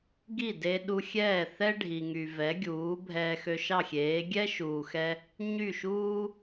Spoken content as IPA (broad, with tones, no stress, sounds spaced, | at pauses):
ɡ i˥˩ d e˧ ɗ u˧ xʲ ɛː˥˩ θ ɛ˥ ɖʱ i˩ ŋ y˩ v ɛ˩˥ ɡʲ uː˩˥ bʱ ɛː˧ x ø˧ ʃ ɑ˥˩ xʲ eː˩˥ ɡʲ ɛ˥ ʃ uː˩ x ɛ˧ | ɲ y˥˩ ʃ uː˥